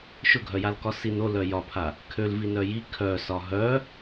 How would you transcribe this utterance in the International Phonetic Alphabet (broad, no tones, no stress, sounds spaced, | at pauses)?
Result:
ʃ ʊ ɡʱ œ j a l k ɒ s i n o l œ j ɒ pʰ a | kʰ ø l v i n œ j i kʰ œ s ɒ ɦ œ